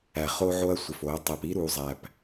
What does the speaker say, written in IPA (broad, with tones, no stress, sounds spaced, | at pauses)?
æ˨ χ o˦ ʕ o˦ ɐ̯ sʷ ɪ˨ f o˨˦ ɐ̯ tˤ æ˨ p i˦ ɾ u˨ zˤ æ˨ p